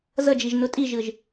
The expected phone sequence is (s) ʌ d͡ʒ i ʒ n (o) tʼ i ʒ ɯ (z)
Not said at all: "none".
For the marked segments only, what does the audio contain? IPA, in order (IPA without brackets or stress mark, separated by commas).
z, o, ʒ